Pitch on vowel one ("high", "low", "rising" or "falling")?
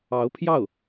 rising